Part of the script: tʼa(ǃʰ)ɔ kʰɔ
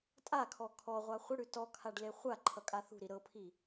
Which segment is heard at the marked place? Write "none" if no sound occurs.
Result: kʰ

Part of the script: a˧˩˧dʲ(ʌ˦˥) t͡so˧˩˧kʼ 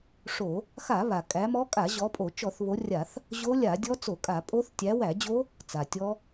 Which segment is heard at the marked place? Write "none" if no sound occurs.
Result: ɔ˦˥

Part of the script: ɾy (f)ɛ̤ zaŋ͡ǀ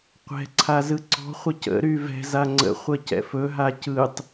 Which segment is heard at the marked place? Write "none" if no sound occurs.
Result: v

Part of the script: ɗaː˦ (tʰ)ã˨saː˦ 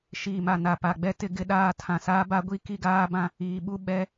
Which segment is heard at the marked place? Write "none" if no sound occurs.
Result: tʰ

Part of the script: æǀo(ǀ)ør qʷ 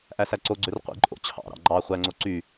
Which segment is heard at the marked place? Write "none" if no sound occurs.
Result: ɡ͡ǀ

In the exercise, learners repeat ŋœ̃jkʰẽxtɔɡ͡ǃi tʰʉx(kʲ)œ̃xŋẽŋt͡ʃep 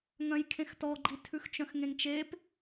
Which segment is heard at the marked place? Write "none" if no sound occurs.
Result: t͡ʃ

